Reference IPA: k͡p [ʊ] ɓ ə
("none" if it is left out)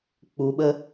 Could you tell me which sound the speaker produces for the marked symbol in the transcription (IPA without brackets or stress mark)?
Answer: u